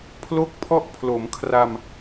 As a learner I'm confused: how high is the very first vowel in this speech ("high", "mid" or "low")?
mid